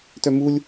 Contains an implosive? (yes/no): no